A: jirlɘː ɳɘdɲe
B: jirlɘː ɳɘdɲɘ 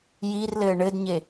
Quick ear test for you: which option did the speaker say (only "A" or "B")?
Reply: A